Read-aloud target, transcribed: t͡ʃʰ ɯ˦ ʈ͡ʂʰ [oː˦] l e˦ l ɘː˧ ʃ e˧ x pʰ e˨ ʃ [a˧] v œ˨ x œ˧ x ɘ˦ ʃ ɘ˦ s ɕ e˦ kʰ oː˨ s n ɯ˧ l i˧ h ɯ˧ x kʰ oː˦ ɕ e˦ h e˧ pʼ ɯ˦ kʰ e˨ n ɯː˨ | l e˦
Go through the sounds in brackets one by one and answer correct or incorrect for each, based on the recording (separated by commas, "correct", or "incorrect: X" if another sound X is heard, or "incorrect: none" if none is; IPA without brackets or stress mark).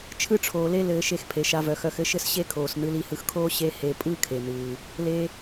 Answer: incorrect: oː˨, correct